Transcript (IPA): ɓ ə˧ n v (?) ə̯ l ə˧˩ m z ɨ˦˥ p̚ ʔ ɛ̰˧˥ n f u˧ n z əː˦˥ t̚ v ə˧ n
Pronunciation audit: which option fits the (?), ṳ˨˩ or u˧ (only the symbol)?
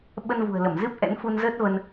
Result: ṳ˨˩